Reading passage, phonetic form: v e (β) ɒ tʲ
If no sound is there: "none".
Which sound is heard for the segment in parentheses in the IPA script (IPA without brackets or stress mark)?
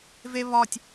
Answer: β